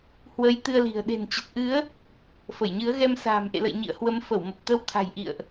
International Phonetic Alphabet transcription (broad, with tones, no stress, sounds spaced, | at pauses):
h w ə˨˦ j t̪ ɨ˧ ə̯ l i̤˨˩ ə̯ ɗ e̤˨˩ n t͡ɕ ə˨˩ t̚ ʔ ɨ˨˦ ə̯ | f ə˧˩ j ɲ ɨ˨˦ ə̯ ɣ ɛ˧ m s a̤ː˨˩ m ʔ ḛ˧˨ l ə̰˧˨ j ɲ ḭ˧˨ ə̯ h w ə˨˦ m f ə˧˩ w m ə˨˩ p̚ t̪ ə˧ w t̪ʰ a̤˨˩ j ʔ ḭ˧˨ ə̯ ʔ